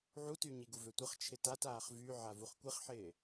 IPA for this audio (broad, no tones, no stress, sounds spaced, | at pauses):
ʕ u t y ɲ i ɡ u v ø tʷ ə χ t͡ʃʰ ɪ t a t aː χ v y ʕ a v u χ kʷ ɪ χ ħ ɪː